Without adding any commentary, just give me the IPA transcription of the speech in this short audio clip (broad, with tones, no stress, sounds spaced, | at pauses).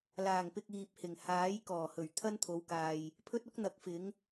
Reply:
l aː˨˩ ŋ p ɪ˨ k̚ iː˨ p̚ h ɪ˨˩ ŋ h aː˨˥ j k ɔː˨˩ h ɵ˨˩ ɥ t̪ʰ ɐ˥ n t̪ʰ o˨˧ w k aː˨ j | pʰ ɵ˥ t̚ ʊ˥ k̚ n̪ ɐ˨˥ k̚ f ɪ˨˥ ŋ